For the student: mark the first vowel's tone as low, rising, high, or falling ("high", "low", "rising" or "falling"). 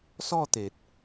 falling